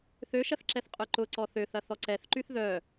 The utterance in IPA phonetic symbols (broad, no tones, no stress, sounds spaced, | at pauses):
θ ø ʃ ɐ θ ǁ ɛ θ qʼ œ ǃ ʊ ǀ ɔ θ ø θ ɐ θ ɔ ǀ ɛ θ ǃ y θ ð œ